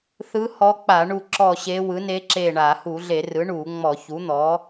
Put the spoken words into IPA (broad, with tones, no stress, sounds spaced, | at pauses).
θ ɯ˧˥ h ɔ˧˥ k͡p a˧˩˧ ɳ u˦˨ ǁ ɔ˦˨ ɕ e˧˥ w ɯ˩˥ n e˧˥ ǁ e˦˨ ɳ a˧˩˧ h u˧˩˧ ɮ e˧˩˧ r ɯ˩˥ ɳ u˧˩˧ ŋ͡m ɔ˧˩˧ ç u˩˥ n̪ ɔ˩˥